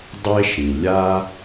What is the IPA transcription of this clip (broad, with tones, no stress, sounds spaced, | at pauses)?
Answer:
dˤ e˥ ʃ ĩ˩ lʲ a˥